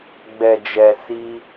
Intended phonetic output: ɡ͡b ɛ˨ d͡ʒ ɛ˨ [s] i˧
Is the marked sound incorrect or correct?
correct